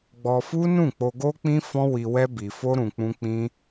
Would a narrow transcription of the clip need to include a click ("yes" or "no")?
no